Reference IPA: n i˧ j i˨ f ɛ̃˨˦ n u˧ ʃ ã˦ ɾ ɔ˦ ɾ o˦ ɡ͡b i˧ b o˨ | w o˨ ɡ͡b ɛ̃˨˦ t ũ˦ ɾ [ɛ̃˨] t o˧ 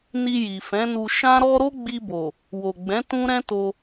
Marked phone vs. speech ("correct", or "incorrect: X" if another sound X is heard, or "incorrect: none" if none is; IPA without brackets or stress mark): incorrect: ɛ̃˦